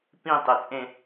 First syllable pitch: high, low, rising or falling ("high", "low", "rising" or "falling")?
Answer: falling